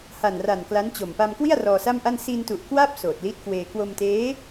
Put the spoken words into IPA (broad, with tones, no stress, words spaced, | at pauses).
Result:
ha˨˩nra˨˩n kla˦˥nt͡ɕo˨˩m pa˧mkwi˥˩a̯ rɔː˧sa˥˩mʔa˥˩n si˧ntu˨˩ʔ kwa˥˩p̚ soː˨˩t̚li˦˥t̚kweː˧ kwo˧mteː˦˥